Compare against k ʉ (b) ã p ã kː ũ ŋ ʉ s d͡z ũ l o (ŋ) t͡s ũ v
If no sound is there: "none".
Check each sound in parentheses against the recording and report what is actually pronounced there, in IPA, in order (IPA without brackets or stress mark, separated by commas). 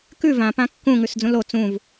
v, none